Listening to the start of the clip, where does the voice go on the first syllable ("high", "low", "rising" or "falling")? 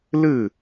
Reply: falling